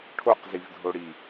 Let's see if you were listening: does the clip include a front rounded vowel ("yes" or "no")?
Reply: no